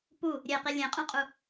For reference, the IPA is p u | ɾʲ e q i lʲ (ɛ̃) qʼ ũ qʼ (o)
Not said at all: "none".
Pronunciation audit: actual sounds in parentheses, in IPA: ẽ, u

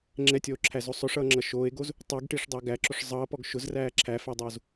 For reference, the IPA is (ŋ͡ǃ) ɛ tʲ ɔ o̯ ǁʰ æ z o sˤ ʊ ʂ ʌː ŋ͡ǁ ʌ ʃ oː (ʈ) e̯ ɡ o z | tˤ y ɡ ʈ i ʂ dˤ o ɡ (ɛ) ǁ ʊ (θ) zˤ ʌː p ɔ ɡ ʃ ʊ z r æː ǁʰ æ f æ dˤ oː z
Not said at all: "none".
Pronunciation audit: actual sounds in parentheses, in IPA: ŋ͡ǁ, none, æ, ʂ

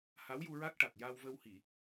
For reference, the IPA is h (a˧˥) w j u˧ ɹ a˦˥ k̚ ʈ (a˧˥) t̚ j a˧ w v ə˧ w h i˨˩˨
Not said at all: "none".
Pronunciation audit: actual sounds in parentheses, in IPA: a˧˥, a˨˩

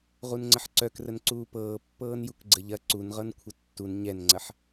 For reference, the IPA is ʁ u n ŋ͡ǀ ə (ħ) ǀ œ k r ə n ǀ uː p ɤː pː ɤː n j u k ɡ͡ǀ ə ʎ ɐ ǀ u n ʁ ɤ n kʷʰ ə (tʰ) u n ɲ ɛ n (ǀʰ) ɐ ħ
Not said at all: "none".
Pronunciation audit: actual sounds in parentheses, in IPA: ħ, tː, ŋ͡ǀ

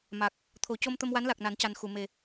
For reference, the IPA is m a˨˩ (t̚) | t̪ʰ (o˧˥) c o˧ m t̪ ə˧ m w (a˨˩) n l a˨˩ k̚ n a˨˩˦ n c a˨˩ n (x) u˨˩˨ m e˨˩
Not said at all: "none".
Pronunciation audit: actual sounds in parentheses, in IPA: k̚, o˨˩˦, a˧˥, x

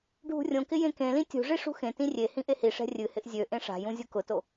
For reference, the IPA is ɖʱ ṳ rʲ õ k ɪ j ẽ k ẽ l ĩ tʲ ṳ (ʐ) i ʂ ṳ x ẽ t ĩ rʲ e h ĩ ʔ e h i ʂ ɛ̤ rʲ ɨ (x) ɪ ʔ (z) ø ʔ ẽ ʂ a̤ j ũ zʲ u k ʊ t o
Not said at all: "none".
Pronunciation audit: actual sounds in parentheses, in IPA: ʐ, h, zʲ

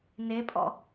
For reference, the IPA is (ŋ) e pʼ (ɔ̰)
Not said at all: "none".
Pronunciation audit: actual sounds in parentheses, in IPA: n, ɔ̰

